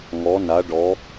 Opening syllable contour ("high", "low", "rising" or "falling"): rising